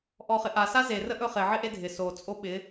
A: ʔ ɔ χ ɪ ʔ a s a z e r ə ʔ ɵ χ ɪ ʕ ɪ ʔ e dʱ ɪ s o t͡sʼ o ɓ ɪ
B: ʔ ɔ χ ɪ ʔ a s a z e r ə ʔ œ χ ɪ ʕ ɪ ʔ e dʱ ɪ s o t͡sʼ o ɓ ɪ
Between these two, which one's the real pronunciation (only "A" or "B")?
A